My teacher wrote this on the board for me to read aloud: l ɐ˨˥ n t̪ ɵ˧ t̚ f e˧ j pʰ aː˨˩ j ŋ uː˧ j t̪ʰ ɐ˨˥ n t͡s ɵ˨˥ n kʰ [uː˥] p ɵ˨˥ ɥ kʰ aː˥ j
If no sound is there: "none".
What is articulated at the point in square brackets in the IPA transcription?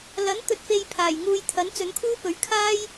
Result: uː˥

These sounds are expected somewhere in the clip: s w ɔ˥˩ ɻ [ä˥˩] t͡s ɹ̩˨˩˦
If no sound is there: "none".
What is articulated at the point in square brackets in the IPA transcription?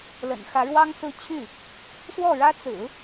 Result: ä˥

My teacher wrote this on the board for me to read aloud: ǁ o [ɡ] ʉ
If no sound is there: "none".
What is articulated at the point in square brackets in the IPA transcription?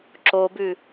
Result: b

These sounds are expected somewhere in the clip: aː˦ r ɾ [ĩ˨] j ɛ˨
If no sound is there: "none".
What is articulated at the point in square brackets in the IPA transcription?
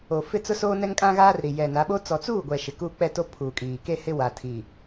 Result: i˨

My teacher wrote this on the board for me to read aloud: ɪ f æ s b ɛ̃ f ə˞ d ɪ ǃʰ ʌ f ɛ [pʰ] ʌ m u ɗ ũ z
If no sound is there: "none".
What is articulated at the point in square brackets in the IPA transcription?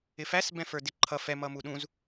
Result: m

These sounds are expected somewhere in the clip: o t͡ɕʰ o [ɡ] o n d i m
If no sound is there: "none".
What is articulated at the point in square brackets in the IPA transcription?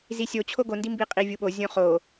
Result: ɡ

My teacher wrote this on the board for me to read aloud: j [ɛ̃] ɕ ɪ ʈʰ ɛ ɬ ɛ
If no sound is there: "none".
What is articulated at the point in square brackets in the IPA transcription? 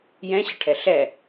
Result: ɛ̃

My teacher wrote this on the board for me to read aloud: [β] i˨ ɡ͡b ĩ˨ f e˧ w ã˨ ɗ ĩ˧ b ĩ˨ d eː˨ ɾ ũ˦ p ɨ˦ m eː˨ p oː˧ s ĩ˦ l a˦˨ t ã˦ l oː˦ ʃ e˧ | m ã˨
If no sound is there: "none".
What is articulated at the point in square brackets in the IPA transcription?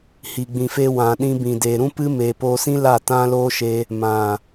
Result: h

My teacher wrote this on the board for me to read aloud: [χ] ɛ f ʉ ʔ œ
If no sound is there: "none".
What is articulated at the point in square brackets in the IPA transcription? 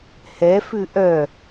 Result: h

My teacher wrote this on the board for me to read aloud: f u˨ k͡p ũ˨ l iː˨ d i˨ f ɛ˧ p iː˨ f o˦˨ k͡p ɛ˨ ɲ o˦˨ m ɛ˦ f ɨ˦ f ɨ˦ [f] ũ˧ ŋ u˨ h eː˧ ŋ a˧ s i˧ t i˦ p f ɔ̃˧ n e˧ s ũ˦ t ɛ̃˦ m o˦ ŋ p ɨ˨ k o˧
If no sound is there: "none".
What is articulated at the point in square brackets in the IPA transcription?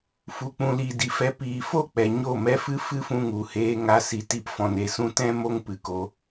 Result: f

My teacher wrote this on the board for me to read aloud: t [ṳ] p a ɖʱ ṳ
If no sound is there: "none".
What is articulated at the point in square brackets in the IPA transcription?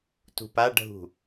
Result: ṳ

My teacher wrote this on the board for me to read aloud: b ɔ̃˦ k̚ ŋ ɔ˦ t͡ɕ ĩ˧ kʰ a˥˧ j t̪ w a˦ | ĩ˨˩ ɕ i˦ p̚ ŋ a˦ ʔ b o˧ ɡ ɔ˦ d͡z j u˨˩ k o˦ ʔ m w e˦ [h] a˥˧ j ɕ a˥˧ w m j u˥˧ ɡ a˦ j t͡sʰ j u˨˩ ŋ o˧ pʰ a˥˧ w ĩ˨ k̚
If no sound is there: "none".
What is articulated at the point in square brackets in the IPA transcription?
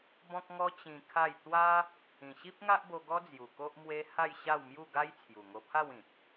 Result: h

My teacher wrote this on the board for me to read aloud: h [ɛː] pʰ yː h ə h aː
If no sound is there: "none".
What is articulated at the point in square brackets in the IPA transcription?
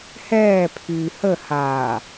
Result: ɛː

